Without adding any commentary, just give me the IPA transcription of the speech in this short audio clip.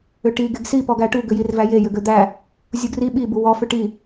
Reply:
ʏ ʈ i ɡ e ɡ s i p ɔ ɡ æ ʈ u ɡ ʏ j i r v æ j e j ʏ ɡ ø d̪ æ | zʲ u ɡ r i ɓ i b u w ɔ f ʏ ʈ i

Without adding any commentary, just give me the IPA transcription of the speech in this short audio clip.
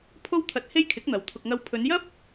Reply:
pʰ o˥ w t̪ʰ ɐ˧ t̚ h e˥ j kʰ ɪ˨˥ k̚ n̪ ɐ˨ w t̪ʰ ʊ˨ k̚ ŋ ɐ˧ w pʰ ɵ˨˧ n j ɐ˥ p̚

